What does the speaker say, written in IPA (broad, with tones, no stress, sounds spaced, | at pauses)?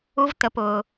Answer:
u˥ v t̪ ə˧ p ʊ˩